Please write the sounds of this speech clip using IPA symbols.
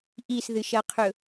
ʔ i s ð ɨ ʃ ɐ qʰ ɵ

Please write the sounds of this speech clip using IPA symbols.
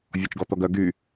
vʲ ɔ t͡ʃ ɡ ɔ t̪ ɔ ɡ œ ɡ y

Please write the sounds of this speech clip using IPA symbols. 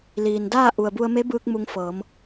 l iː˩ n d aː˥˨ ʔ u˩ ə̯ b u˧ ə̯ m e˧˥ b ɯː˧ k̚ m u˧ ŋ f ɤː˩˧ m

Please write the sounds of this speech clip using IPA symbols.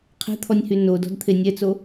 qʰ e̤ t̪ʰ ɔ nʲ h y n o d ɔ̤ d t̪ʰ e nʲ ɛ t͡s o

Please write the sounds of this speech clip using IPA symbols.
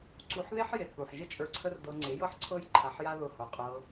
ǀ u˧ ħ ð e˦ ħ j e˨ θ u˨ ħ ʒ ə˦ t͡ʃʼ ə˞˧ ǀʰ ə˦ r d ɤ˧ ŋ͡ǀ e˨˦ j ɤ˦ ħ ǀʰ ɤ˦ j ǃʰ a˧ ħ j a˦ ð ʊ˧ h o˨ qʼ ɤ˧

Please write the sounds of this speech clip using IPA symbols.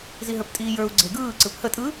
z i ɦ ə˞ p tʼ iː j ə˞ u̯ ɡ͡ǀ e ɡ ɯː ǀ ɯ p h ə tʼ ɯ

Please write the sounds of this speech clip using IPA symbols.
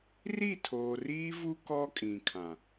r i˦˨ tʰ oː˨ r iː˦ v u˦ k ɔ˦ kʼ ĩ˨ kʰ ã˨

